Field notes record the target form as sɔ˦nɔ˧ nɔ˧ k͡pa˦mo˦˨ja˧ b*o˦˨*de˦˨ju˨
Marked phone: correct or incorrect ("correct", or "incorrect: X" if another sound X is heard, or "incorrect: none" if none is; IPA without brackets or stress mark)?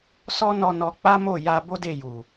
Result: incorrect: o˦